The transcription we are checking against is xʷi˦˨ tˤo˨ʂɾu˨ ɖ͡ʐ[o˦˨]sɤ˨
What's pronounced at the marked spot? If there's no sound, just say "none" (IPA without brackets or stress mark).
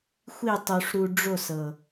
o˦˨